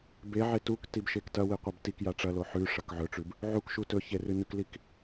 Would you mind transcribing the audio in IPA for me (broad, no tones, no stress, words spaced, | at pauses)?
beʕe tuktib ʃektɐwi qʷɐbtikja ʈ͡ʂɐlo ħʉ ʂɐkʕɵʈ͡ʂʉb | ʕukʃu tɵçe rɨnɵklik